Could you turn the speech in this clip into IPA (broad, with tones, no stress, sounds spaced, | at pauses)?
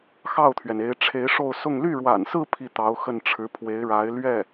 x ɑ˥˩ ʊ̯ t̪ʰ ɥ ɛ˩ n e˧˥ ɪ̯ ʈ͡ʂʰ e˧˥ ɪ̯ ʂ o˥˧ ʊ̯ s ʊ˥˧ ŋ l y˥˩ ɻ w a̰˨˩ n s ɹ̩˥˧ pʰ i˥˩ t̪ ɑ˧˥ ʊ̯ x ə˥˩ n ʈ͡ʂʰ ɻ̩˧˥ pʰ w e˧˥ ɪ̯ ɻ a˧˥ ɪ̯ l ɥ ɛ˥˩